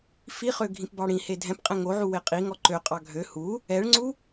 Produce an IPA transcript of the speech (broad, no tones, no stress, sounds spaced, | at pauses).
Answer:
f i χ ø ɡʱ ĩ p b ɑ ɽ ĩ h e dʱ ɛ̃ p qʼ ɛ̃ ŋ o ʕ u w e qʼ i ŋ ɔ ǃ ø qʼ ɑ ɡʱ ø h u | ɛ ɭ ŋ͡ǀ u